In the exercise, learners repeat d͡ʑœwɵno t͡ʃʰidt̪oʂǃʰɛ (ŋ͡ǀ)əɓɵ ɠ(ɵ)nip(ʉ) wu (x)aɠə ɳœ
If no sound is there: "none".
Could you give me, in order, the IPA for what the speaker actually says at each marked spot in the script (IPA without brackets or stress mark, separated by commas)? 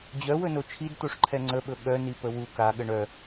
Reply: ŋ͡ǀ, œ, ə, k